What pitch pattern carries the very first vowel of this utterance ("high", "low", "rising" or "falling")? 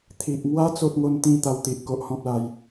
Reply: low